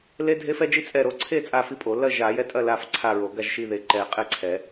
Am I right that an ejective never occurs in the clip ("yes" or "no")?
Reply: no